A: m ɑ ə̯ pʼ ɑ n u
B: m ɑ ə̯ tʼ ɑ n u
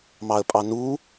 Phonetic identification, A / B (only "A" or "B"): A